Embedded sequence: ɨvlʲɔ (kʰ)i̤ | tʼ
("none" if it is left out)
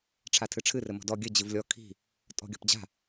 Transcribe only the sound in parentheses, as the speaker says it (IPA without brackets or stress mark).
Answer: kʰ